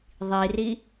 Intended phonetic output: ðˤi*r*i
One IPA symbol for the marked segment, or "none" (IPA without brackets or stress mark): r